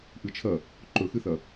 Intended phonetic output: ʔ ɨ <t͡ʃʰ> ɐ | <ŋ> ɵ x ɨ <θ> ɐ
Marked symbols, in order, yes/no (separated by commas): yes, no, yes